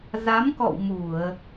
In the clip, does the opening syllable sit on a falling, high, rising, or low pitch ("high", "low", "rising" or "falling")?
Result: rising